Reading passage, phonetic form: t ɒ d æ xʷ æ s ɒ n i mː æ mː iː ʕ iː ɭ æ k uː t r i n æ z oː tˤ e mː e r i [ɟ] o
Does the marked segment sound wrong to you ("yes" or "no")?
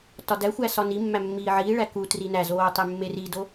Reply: yes